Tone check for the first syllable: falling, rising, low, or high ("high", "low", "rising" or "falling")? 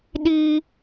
high